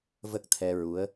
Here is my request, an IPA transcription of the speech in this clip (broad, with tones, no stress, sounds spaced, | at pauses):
v ə˦˥ k̚ t̪ʰ ɛ˧ ɹ u˧˥ ə̯